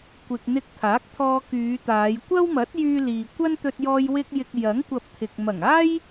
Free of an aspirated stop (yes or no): no